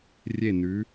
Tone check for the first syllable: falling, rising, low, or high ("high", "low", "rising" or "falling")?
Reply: falling